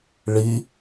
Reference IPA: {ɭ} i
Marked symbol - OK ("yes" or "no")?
yes